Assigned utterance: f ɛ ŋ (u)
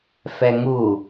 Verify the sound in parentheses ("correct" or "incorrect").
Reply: correct